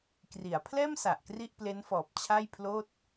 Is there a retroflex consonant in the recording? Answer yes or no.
no